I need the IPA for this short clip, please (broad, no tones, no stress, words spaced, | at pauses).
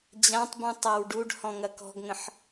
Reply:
d͡ʑãtˤbũ tˤawɖuɖ hɔ̃ŋɐkɔ̤ɡŋə̃ħ